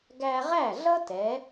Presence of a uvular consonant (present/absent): present